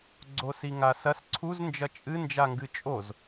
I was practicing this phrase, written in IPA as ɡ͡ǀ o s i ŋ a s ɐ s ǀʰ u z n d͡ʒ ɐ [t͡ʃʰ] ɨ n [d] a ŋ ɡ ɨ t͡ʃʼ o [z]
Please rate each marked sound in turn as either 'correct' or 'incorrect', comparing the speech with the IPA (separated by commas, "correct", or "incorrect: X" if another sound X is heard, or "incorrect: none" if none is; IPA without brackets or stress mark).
incorrect: t͡ʃʼ, incorrect: d͡ʒ, correct